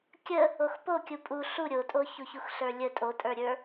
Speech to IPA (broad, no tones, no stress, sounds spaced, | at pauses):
kʲ ə | o x p o kʲ u pʼ u ɬ u ɾʲ o tʼ o ç u ç u x ɬ ə˞ lʲ ə tʼ o tʼ ə˞ ɾʲ ə˞